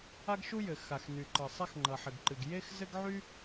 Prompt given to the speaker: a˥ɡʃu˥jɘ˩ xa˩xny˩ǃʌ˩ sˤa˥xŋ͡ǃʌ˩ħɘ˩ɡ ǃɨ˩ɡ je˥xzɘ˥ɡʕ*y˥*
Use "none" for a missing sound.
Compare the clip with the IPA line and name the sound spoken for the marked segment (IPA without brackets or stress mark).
y˥